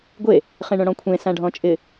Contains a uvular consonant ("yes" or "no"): yes